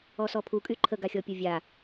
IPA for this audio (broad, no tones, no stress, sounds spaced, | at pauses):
ɔ s ɔ pʰ u kʼ y ǃʰ ə ɡ a xʲ ɔ pʲ o vʲ a